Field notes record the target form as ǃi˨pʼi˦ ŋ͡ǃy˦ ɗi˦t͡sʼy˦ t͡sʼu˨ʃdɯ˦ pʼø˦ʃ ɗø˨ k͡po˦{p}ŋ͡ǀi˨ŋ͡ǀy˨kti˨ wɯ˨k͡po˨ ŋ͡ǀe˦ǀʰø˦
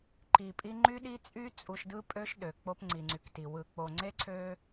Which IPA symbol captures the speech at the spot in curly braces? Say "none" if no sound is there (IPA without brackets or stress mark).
p